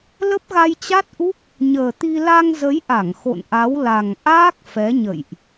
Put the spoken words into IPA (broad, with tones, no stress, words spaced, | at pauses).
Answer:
lə˦˥p̚ɣa˧jt͡ɕa˦˥t̚ʔu˦˥k̚ | ɲəː˨˩t̪i˧ la˧ŋzə˨˦jʔa˧˩ŋ xo̰˧˨nʔa˨˦wla˨˩ŋ ʔaː˦˥k̚ fɛ˨˦ɲə̰˧˨jʔ